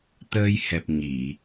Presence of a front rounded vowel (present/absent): absent